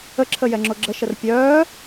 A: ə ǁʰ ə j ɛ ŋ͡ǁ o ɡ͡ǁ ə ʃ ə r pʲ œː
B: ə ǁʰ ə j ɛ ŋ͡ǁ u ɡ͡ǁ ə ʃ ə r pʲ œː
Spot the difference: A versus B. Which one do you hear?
A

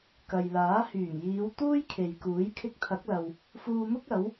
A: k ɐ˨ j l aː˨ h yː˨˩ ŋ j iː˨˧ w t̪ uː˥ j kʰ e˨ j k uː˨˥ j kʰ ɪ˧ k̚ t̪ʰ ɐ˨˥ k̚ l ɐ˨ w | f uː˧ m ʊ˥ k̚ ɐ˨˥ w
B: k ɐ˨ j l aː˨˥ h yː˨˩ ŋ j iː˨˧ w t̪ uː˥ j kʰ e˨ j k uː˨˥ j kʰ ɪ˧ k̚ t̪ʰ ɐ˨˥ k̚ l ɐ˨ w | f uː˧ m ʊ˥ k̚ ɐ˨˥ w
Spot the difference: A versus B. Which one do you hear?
B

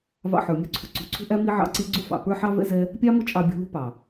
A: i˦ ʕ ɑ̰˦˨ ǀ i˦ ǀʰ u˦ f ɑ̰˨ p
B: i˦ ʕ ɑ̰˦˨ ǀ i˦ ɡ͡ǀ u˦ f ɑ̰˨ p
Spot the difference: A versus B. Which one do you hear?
B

